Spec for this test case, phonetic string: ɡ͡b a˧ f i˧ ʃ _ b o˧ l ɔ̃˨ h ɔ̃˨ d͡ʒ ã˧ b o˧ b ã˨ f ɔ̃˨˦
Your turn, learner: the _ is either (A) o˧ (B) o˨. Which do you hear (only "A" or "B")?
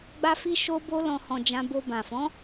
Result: A